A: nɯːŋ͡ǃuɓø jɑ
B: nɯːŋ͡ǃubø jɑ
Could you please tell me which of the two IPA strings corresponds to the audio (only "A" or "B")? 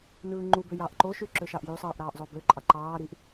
B